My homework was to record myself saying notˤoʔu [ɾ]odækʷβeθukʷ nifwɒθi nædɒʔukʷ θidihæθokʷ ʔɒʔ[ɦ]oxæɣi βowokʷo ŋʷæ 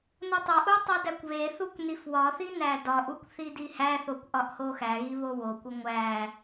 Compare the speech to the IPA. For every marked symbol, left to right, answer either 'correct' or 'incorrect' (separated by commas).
incorrect, incorrect